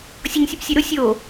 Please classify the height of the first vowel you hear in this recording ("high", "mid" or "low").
mid